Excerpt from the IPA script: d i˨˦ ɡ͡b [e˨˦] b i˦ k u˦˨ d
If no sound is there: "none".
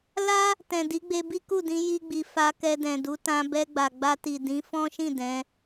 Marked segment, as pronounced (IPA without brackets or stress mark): e˧